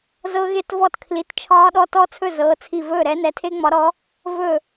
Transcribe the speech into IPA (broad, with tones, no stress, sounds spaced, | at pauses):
z ɤ˦˥ ɣ e˥˩ t v ɔ˥˩ t kʰ l i˨˥ t t͡ʃʰ ɒː˦˥ ɗ ɔ˦˥ t ɔ˦˥ t͡sʰ ɵ˥˩ z ɤː˨˥ t͡sʰ i˥˩ v ɵː˥˩ ɾ ɛ˦˥ n ɛ˨˥ tʰ e˦˥ ŋ͡m ɒ˨˥ ɾ ɔ˨˥ | v ɵ˥˩